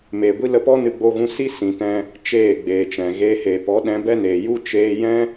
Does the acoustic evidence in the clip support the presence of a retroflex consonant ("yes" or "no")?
no